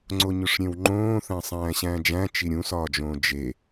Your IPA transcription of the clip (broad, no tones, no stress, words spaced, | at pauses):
ŋ͡ǀoɲoʂɾʲẽwŋ͡ǃõː θæ̃sˤæ̃ːɕæ̃ːd͡ʒæ̃ t͡ʃiɾʲũsɒːd͡ʒõː d͡ʒe